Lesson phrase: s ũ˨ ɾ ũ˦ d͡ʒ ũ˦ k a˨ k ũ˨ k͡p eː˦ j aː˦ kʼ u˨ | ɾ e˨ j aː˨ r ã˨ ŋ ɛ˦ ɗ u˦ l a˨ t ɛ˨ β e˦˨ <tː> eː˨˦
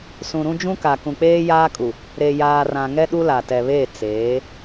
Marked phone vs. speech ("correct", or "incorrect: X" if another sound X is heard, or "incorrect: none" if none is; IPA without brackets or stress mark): incorrect: t͡s